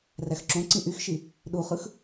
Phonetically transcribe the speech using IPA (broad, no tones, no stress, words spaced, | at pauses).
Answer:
ræxǁõǀĩ ʔyxʃi | ɗuχɯx